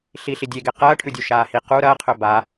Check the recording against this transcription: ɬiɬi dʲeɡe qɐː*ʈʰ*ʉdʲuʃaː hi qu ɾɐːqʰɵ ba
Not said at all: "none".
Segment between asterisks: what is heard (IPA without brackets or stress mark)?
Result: ʈʰ